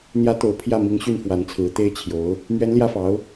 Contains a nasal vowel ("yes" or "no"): no